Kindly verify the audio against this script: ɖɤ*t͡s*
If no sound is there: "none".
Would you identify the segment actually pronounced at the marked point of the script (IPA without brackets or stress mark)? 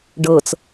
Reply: t͡s